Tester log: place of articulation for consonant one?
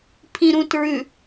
labial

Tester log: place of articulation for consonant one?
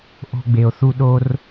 glottal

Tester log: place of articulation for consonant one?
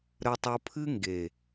alveolar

